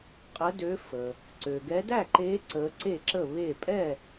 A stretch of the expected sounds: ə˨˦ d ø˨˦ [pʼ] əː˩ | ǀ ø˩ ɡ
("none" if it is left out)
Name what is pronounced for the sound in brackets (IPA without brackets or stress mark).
f